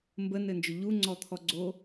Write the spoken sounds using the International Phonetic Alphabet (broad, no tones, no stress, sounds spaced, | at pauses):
m b ə n ɘ n d͡ʒ ʊ ʎ u ŋ͡ǀ ɔ t̪ʰ ɔ ɡ͡ǀ o